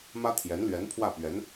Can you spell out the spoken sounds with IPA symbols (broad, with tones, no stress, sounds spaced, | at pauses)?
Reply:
m ä˥ t̪ʰ j ɛ˧˥ n l ɥ ɛ˧˥ n pʰ w ä˥˩ p ɥ ɛ˧˥ n